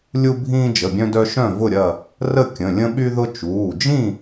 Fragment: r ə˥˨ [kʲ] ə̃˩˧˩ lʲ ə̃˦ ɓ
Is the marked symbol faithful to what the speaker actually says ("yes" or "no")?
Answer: yes